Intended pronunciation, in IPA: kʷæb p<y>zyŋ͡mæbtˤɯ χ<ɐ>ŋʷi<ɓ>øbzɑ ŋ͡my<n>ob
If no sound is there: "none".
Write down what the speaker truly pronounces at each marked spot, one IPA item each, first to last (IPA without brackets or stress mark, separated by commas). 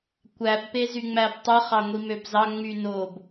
e, ɑ, m, n